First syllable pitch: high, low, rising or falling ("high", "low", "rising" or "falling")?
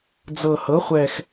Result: low